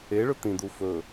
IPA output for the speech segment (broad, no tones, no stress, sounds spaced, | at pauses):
e ɭ ɵ t̪ ĩ d̪ u f ɵ